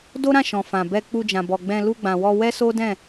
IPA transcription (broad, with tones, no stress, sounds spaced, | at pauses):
d o˦ ɾ ã˦˨ ʃ ɔ̃˨ f ã˨ b ɛ˧ k͡p u˧ d͡ʒ ã˨ b ɔ˨ ɡ͡b ɛ̃˧ l u˧ ɡ͡b ã˨ w ɔ˧ w ɛ˦ s o˦ d ɛ̃˦˨